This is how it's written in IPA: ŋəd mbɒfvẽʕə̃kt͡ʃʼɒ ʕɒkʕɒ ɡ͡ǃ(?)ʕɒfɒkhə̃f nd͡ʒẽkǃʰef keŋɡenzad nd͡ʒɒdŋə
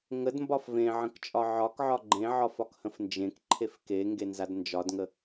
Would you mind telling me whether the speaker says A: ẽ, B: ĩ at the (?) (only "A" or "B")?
A